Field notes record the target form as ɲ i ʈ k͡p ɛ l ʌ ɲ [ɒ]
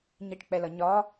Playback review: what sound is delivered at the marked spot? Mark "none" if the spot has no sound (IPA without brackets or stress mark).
ɒ